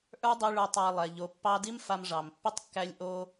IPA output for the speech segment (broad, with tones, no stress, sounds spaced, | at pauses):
ʔ ə˞˦ dˤ i˧ ɭ ə˞˧ tˤ a˧ lˠ ɛ˨ ʎ o˨˦ pː ɑ˦ d i˦ m f a˧ m ʐ ɑ˨ m pː i˦ tˤ kː æ˦ lʲ ʔ o˦